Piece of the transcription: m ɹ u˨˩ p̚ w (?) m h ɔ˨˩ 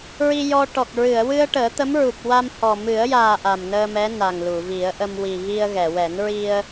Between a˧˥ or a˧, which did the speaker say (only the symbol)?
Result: a˧